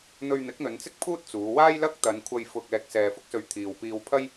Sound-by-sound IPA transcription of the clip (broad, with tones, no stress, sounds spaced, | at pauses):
n̪ ɵ˧ ɥ n̪ ɪ˨˥ k̚ n̪ ɵ˨˧ n t͡s ɪ˥ k̚ pʰ uː˥ t̚ t͡s uː˨˧ w aː˥ j l ɐ˥ k̚ t̪ ɐ˨˧ n kʷʰ ɐ˧ j f ʊ˧ k̚ ɛː˧ k̚ s ɛː˧ f ʊ˥ k̚ s ɵ˧ ɥ t̪ʰ iː˨ w p iː˧ w pʰ ɐ˥ j